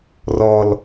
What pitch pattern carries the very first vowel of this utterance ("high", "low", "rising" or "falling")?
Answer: high